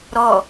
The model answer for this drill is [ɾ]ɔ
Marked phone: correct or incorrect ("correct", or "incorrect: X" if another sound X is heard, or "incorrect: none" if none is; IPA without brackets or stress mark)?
correct